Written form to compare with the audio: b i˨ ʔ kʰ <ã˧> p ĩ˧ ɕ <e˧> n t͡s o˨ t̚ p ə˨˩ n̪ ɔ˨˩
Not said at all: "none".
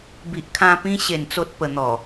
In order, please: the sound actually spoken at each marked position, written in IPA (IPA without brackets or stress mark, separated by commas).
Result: ã˧, e˨˩